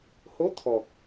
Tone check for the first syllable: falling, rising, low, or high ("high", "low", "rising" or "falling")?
rising